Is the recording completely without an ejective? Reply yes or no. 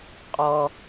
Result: no